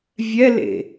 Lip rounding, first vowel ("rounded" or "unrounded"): unrounded